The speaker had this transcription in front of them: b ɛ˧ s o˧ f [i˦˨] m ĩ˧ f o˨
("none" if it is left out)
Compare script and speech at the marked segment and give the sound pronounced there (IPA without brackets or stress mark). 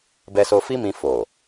i˦